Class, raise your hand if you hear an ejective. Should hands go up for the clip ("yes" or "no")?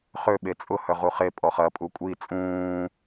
yes